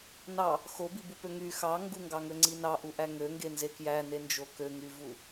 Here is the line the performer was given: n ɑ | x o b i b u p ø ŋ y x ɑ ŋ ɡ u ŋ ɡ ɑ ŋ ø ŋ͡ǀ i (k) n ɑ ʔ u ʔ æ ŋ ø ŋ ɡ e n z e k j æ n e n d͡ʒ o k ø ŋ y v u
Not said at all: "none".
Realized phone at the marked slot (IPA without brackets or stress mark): none